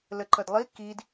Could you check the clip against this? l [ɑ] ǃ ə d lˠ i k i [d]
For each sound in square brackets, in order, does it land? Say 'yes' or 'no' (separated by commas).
no, yes